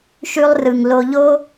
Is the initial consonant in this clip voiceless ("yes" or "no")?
yes